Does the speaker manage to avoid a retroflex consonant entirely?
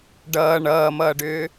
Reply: no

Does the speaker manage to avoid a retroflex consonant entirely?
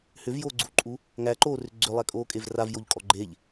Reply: yes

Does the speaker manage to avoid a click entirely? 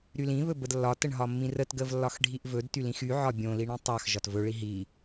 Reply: yes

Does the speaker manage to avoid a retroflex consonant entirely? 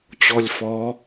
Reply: yes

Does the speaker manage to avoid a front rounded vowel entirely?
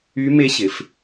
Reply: no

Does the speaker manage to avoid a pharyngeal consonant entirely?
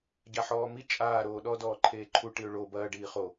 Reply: no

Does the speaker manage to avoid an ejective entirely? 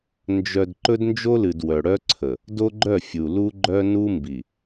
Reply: yes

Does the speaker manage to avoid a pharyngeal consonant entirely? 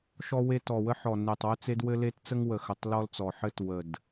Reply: no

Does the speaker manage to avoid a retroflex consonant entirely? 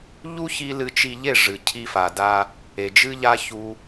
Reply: no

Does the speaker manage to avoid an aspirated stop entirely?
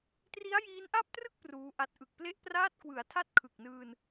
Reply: no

